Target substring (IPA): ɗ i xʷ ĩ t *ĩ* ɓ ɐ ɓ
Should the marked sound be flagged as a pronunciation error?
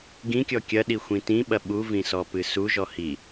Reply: no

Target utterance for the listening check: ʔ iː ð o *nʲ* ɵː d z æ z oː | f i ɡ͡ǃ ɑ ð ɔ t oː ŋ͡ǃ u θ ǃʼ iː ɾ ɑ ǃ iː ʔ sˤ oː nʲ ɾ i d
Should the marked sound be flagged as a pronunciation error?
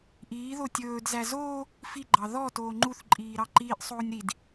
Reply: yes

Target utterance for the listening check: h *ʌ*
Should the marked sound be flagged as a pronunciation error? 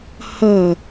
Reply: no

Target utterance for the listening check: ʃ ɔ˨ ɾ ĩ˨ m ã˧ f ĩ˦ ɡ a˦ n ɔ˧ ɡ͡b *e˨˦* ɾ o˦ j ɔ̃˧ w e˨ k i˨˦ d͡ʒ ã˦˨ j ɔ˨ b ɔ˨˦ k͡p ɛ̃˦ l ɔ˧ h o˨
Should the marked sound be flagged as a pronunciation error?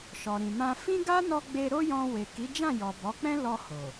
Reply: yes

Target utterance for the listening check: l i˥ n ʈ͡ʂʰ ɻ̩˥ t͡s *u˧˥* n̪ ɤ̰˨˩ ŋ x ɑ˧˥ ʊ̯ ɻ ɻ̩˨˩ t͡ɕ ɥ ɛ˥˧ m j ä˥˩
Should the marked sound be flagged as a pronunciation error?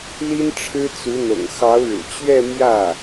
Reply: no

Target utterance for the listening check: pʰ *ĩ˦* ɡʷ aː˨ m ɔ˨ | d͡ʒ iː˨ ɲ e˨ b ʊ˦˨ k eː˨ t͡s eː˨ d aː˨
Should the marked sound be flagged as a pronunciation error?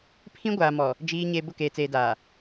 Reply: no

